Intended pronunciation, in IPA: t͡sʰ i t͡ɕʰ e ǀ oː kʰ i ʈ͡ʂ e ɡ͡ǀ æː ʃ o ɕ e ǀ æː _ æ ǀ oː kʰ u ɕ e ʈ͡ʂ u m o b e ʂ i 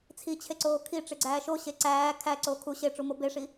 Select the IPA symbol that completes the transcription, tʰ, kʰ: kʰ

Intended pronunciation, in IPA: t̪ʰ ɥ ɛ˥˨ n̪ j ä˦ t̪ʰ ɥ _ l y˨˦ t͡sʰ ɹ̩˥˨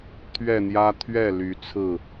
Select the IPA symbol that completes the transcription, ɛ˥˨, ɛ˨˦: ɛ˥˨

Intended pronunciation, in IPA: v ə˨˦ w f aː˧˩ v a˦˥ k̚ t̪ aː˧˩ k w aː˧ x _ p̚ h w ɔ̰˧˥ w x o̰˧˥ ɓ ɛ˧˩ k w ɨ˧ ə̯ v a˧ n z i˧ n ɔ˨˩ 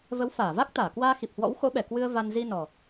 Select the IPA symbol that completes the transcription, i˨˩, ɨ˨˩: i˨˩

